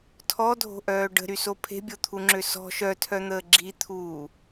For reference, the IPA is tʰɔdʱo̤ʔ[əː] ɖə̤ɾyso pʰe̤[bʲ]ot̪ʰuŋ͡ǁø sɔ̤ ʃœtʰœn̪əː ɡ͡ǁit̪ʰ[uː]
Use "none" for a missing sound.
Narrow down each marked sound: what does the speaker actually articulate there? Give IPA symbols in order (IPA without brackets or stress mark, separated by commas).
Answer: œː, bʲ, uː